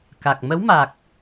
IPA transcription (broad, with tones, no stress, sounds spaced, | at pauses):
k a˨˩ k̚ m ə˧˥ w m a˨˩ k̚